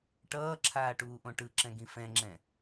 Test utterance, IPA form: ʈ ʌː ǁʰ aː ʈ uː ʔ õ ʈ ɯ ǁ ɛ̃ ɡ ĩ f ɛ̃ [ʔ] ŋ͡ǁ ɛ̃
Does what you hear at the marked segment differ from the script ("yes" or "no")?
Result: yes